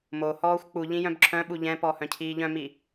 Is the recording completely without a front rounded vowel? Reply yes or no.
no